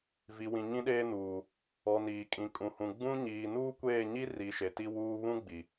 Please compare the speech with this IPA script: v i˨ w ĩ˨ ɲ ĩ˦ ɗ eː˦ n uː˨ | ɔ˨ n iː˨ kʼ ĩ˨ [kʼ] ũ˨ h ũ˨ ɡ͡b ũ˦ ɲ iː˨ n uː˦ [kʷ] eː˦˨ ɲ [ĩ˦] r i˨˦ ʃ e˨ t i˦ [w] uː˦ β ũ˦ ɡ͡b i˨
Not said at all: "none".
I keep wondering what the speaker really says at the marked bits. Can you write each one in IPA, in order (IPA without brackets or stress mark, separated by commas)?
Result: kʼ, kʷ, i˦, w